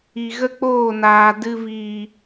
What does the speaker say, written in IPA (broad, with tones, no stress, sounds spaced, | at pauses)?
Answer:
i˨ ɣ ə˦ k͡p oː˦˨ n aː˨ d ɨ˧ v iː˨